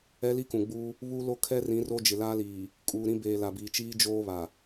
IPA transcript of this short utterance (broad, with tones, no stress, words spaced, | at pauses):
ɛ˦li˦kũ˨ɡ͡buː˦ | βu˦lo˦kʰɛ˦rĩ˨˦ ro˦d͡ʒɪ˨laː˦liː˨ | kʼuː˨ɾĩ˦beː˨ la˨biː˨t͡ʃiː˦ d͡ʒoː˦βa˨